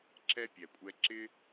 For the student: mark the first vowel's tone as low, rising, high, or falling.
high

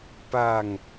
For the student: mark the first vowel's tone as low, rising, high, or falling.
falling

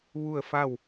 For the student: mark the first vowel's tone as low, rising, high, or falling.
falling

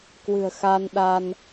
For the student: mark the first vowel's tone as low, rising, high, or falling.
low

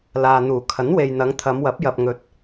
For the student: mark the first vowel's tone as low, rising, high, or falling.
low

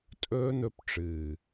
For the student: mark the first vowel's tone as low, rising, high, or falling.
high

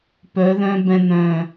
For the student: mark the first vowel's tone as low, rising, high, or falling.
rising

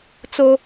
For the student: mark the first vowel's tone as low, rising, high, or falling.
high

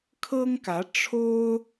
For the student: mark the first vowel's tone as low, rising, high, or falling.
high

